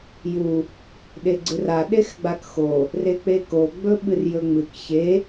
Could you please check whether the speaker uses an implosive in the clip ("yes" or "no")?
yes